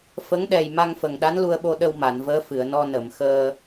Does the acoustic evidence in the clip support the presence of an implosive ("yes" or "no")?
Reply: yes